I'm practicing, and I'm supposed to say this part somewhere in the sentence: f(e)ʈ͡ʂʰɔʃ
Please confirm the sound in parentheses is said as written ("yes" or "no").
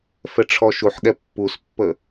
no